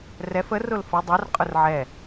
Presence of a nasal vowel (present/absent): absent